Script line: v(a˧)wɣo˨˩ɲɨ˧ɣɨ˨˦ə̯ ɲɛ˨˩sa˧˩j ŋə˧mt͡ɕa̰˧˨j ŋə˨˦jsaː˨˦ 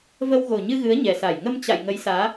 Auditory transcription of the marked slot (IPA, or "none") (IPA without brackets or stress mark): ə˧